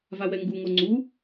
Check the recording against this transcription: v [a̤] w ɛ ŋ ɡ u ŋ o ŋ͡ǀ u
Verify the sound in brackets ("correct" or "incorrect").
incorrect